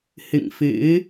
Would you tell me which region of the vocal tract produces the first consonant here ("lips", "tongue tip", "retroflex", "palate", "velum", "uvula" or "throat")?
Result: throat